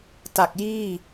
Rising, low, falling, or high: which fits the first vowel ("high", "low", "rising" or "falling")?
low